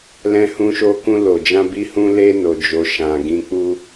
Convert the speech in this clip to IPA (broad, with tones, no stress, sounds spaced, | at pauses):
l ɛ̃˧ h ũ˧ ʃ o˧ k ũ˧ l o˨ d͡ʒ ã˧ b i˦ h ũ˦ l e˦ n o˧ d͡ʒ o˧ ʃ ã˨ ɡ ĩ˧ k͡p u˦